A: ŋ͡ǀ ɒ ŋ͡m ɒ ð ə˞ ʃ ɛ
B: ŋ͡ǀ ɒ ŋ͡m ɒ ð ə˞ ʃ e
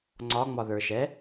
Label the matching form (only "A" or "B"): A